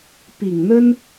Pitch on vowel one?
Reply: low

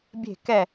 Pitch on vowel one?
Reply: falling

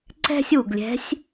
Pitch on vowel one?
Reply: high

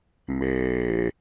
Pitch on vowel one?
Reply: low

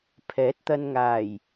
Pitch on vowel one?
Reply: rising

